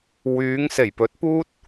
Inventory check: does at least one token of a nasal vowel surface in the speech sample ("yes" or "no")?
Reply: no